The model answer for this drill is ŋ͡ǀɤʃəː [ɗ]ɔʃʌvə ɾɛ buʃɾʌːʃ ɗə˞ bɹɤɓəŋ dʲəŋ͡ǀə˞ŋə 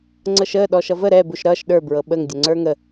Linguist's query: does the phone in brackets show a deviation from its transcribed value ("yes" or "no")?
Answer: no